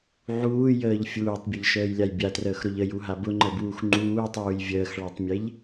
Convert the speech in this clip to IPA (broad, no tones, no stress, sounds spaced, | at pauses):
ʕ uː j əː ʎ fʲ uː tˤ bʲ ɐ ʎ ʃ əː j lʲ a j bʲ a t r əː x ɾ ʊ ʎ ə j u ɦ a b ʊ ŋ͡ǃ ə b uː x ŋ͡ǃ uː tˤ uː j vʲ əː x ɭ a tˤ mʲ e ʎ